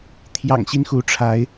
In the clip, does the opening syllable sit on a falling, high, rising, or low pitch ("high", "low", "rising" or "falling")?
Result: low